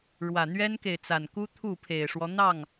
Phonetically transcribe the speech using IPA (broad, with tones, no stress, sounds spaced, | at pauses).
ɻ w ä˨˩ n̪ ɥ ɛ˦ n k e˨ ɪ̯ t͡s a˨˩ n k u˦ t̪ʰ u˥˨ pʰ e˨˩ ɪ̯ ʂ w ɔ˦ n̪ ɑ˥˨ ŋ